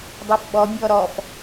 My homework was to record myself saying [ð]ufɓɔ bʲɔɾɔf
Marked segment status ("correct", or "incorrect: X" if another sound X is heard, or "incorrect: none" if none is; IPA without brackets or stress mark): incorrect: dˤ